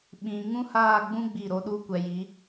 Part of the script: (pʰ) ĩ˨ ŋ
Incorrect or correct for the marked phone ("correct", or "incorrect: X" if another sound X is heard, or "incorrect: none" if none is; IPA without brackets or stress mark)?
incorrect: ɓ